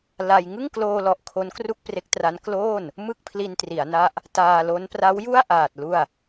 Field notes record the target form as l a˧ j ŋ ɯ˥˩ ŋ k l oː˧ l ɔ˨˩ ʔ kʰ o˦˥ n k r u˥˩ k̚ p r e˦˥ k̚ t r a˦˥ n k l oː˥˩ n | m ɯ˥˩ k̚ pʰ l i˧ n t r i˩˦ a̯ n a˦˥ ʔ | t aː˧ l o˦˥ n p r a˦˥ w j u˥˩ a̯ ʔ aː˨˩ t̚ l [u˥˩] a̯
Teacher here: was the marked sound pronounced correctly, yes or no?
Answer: yes